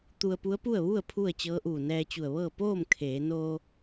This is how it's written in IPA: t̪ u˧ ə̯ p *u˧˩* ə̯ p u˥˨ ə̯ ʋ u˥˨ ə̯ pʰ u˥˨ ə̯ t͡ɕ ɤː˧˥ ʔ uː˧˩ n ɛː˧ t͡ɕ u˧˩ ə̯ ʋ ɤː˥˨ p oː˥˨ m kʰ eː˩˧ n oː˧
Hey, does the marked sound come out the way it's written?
no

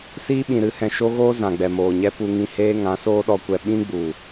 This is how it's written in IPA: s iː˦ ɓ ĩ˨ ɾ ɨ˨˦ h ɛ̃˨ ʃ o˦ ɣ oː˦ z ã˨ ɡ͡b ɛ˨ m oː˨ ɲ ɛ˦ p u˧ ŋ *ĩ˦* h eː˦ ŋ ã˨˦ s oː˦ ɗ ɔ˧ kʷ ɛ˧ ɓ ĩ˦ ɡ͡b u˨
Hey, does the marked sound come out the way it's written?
no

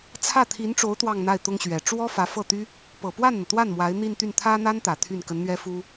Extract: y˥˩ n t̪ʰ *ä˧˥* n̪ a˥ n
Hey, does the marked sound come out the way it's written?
no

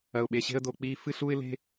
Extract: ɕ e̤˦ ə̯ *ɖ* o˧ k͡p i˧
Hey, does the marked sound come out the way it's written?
no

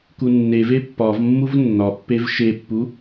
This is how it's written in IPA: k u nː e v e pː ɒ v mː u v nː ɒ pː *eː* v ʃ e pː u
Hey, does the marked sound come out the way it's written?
no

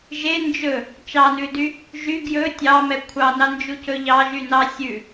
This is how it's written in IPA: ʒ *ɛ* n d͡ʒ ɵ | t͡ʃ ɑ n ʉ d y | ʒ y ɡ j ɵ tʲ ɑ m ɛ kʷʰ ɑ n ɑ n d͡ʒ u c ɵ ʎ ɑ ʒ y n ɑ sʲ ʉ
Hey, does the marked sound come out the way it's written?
no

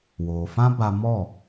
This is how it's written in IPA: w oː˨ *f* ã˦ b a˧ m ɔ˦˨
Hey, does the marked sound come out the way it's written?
yes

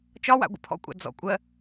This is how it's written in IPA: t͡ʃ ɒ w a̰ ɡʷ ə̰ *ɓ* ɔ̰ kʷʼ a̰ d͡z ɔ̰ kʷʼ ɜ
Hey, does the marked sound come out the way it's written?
no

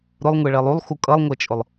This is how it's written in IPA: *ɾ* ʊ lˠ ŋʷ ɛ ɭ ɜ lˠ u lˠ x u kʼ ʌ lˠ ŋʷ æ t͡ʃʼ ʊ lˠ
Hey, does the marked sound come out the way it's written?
yes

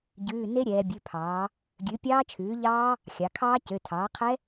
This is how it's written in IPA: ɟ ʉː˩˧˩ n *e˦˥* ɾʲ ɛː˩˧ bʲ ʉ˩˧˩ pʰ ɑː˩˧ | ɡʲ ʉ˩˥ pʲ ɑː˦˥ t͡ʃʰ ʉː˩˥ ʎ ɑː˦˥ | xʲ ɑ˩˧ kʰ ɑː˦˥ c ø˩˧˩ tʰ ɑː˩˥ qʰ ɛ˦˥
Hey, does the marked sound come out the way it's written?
yes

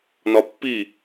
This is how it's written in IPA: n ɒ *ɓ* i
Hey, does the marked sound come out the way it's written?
no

